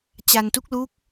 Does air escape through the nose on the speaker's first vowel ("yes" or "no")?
no